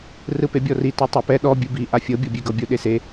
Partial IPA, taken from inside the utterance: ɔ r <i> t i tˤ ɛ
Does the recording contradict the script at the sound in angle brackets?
no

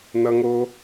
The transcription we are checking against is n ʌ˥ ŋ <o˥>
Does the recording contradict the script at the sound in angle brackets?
no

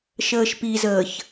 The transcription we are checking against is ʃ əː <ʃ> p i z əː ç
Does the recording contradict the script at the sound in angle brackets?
no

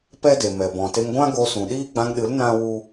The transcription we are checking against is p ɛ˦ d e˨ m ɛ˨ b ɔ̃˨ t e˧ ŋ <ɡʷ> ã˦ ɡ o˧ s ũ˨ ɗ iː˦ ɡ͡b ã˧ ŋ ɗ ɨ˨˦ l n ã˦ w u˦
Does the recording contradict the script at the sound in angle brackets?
no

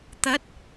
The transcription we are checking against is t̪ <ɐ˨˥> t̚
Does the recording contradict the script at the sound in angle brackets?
no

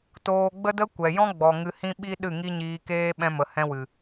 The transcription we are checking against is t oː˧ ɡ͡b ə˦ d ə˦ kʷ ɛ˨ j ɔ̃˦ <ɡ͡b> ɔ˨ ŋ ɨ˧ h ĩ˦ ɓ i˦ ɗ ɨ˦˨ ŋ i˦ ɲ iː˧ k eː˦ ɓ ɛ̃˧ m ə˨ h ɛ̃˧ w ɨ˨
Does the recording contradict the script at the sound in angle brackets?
no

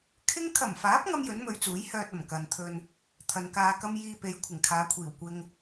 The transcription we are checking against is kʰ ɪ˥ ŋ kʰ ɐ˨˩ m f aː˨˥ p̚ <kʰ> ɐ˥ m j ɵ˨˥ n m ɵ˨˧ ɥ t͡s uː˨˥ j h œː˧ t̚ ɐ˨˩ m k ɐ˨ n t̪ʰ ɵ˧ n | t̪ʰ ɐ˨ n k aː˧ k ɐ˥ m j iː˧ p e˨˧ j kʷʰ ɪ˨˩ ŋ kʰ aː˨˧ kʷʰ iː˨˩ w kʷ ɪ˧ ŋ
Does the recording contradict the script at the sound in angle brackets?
yes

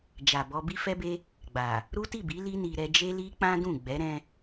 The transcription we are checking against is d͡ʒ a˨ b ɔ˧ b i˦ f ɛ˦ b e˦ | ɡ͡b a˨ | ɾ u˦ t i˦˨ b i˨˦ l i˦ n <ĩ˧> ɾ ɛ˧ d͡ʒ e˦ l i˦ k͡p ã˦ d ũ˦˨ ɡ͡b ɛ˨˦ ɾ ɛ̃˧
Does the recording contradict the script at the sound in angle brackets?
yes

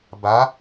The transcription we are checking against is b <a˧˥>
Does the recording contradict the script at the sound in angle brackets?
no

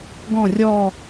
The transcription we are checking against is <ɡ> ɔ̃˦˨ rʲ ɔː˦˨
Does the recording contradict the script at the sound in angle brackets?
no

